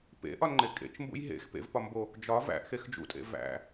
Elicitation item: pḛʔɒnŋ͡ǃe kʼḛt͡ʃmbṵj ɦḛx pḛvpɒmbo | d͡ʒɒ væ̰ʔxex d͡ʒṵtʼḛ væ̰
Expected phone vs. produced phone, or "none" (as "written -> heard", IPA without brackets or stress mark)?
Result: none